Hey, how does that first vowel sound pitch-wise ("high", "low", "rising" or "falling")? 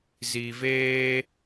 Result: low